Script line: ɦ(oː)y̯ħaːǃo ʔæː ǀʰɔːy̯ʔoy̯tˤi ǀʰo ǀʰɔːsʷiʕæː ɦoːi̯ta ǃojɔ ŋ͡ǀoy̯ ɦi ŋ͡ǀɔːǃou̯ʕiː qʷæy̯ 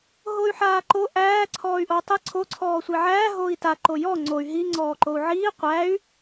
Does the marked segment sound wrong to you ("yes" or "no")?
yes